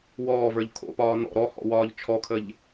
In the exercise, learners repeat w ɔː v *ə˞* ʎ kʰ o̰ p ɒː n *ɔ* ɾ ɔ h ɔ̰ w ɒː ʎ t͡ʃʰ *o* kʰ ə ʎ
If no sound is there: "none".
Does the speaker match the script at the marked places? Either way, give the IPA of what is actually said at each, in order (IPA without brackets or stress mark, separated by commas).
ə˞, ɔ̰, ɔ